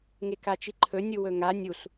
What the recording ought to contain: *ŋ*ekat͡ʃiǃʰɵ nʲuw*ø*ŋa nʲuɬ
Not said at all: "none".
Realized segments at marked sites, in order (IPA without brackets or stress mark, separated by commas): ŋ, ɵ